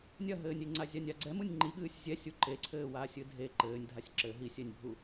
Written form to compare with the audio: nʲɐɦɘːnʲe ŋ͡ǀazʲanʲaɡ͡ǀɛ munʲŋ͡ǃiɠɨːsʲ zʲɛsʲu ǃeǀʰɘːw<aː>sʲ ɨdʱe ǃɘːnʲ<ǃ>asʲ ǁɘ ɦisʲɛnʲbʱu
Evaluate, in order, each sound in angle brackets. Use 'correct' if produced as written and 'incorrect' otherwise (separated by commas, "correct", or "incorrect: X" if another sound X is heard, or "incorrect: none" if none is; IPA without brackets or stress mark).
correct, incorrect: dʱ